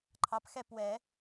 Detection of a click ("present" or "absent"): present